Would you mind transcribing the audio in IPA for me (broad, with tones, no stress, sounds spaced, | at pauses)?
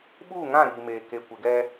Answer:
ɓ uː˦˨ ŋ ã˦˨ ɾ iː˨ m eː˨ k e˨ kʷ ɪ˨ ɡ ɛ˦